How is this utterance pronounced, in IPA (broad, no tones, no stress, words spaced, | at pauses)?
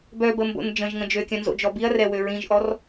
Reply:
bœbəmbo̰n d͡ʒə̃ʒŋə̃ d͡ʒøkʲœ̃nzo̰d͡ʒɔ biɐ̯rɛwø ɹĩʒʔɔr